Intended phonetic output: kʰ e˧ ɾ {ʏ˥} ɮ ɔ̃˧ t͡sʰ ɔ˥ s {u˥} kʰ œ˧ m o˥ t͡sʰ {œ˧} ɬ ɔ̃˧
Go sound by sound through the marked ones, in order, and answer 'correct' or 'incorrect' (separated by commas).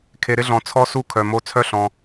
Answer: incorrect, correct, incorrect